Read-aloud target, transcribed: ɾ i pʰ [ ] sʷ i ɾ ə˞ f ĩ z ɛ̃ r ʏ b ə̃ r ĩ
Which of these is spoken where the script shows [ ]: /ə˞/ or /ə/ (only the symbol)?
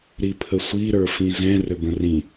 ə